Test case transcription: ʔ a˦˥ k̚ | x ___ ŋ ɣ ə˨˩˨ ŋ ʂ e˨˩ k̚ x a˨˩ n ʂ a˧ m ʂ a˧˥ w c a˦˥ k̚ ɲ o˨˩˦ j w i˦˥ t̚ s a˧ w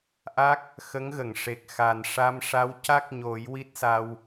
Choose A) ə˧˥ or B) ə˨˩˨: A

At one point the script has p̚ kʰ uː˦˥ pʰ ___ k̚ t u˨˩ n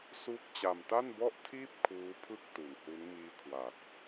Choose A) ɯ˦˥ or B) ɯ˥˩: B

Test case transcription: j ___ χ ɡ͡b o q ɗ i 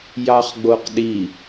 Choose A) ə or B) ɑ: B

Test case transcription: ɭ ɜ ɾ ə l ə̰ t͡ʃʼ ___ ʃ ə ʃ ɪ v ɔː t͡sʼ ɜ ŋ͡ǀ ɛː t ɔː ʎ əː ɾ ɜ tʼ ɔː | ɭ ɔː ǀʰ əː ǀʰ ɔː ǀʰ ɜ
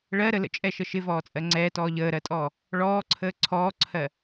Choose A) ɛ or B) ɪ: A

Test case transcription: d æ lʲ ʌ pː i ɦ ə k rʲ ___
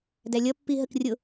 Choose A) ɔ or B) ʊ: B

